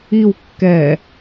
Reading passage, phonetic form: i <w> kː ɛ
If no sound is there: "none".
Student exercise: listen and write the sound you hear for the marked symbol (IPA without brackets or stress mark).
w